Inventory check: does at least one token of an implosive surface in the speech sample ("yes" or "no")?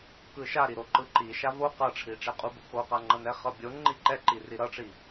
no